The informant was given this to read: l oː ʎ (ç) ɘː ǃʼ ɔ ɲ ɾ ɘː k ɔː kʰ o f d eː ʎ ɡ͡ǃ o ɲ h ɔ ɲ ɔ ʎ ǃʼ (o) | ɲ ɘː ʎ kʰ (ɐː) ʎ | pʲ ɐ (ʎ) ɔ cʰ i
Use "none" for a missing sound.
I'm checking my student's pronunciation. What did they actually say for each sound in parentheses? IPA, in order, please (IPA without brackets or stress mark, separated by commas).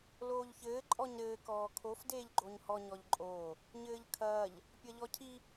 ç, oː, ɐː, ʎ